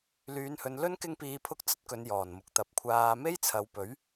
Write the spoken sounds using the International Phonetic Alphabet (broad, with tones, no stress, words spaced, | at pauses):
lyː˨˧nhɵ˨˧nlɵ˥n kɪ˥ŋpiː˧pʰʊ˥k̚ t͡sɐ˥t̚kɵ˨˧n jɔː˨˩nmʊ˨˥k̚ t̪ɐ˨˥p̚kʷʰaː˧ me˥jt͡sʰɐ˨˧wpɵ˨˥ɥ